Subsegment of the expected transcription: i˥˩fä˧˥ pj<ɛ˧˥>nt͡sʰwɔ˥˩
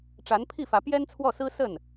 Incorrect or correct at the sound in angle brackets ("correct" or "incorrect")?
incorrect